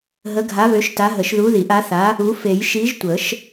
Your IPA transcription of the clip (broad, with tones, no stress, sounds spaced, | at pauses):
ɦ ə˨˥ ɡʱ a˨˥ β ø˨˥ ʃ t a˨˥ ɦ ə˨˩˦ ʃ ð u˨˥ ð i˨˩˦ ʔ a˨˥ θ a˨˥ | u˨˥ f e˨˩˦ j ʃ i˨˥ ʒ tʷ ə˨˩˦ ʃ